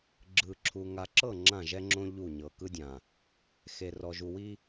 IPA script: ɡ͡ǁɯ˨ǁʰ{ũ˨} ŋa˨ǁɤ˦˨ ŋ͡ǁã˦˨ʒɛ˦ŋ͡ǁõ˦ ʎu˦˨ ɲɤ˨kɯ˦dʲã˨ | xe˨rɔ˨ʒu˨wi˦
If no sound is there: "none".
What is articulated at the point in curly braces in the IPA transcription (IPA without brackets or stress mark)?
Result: u˨